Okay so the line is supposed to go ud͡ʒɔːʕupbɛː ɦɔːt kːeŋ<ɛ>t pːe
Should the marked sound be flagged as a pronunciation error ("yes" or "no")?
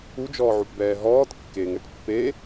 no